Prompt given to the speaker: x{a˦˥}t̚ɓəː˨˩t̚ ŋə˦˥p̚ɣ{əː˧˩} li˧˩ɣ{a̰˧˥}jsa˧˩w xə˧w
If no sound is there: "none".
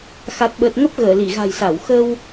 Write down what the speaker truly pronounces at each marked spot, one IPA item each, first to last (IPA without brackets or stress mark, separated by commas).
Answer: a˨˩, əː˧˩, a̤˨˩